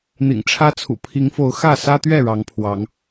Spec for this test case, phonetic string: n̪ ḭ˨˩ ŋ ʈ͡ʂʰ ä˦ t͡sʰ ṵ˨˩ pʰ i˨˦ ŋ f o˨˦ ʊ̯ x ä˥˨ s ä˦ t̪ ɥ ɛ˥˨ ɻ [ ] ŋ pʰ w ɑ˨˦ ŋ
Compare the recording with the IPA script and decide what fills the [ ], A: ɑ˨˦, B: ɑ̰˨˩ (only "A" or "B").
A